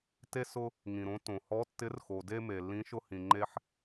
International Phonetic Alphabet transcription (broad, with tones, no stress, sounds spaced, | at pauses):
t e˧ s ʊ˧ | ŋ ĩ˩ ɾ õ˨˥ t õ˩ h ɔ˨˥ tː ɪ˨˥ r x o˩ d e˧ m e˩ lː ĩ˨˥ ʃ ʊ˧ h ĩ˩ ŋ͡ǃ e˧ ħ